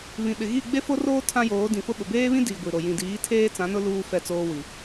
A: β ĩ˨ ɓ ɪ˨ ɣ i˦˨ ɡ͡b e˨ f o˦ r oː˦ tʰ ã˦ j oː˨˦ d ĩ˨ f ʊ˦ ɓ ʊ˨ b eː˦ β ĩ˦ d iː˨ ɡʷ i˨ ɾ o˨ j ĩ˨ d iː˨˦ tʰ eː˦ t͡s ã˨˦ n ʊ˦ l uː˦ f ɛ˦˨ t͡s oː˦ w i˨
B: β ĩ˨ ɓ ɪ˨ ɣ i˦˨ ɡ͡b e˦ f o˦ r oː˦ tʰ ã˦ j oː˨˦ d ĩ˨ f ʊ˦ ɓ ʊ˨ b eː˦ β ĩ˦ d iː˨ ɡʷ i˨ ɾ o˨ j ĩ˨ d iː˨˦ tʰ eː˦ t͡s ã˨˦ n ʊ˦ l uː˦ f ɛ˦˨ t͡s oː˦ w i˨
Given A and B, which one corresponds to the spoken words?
B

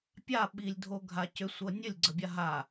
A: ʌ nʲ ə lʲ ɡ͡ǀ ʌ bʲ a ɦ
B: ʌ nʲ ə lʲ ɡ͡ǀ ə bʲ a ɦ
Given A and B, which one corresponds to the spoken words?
B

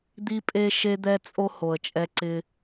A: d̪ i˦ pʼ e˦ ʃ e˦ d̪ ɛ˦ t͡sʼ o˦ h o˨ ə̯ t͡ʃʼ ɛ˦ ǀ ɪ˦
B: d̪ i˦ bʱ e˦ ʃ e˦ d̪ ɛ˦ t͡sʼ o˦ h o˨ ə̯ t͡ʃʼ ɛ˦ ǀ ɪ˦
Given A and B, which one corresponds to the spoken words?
A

